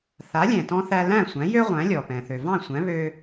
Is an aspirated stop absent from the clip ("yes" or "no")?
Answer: yes